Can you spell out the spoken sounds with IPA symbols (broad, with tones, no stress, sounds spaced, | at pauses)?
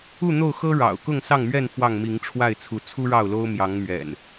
u˥˨ n̪ o˥˨ ʊ̯ x ɤ˦ ɻ ɑ̰˨˩ ʊ̯ k ʊ˥˨ ŋ s ɑ˥˨ ŋ m ɥ ɛ˥˨ n f w ɑ˥˨ ŋ m i˨˦ ŋ ʈ͡ʂʰ w a˥˨ ɪ̯ t͡sʰ u˨˦ t͡sʰ u˦ ɻ ɑ˥˨ ʊ̯ l o˦ ʊ̯ m j ɑ˨˦ ŋ m ɥ ɛ̰˨˩ n